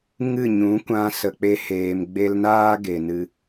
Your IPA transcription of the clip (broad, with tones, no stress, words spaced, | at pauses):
ŋɨ˦˨ɲũ˨˦kʷã˧ sə˨ k͡pe˧heː˨mɡ͡be˧lnaː˦ ɡe˨nɨ˧